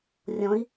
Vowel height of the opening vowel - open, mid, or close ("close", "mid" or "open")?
mid